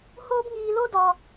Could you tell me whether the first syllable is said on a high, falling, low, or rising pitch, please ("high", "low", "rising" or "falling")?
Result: high